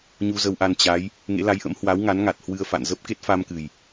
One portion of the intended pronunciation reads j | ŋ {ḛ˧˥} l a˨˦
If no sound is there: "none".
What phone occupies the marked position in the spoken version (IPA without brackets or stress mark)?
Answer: ḛ˧˥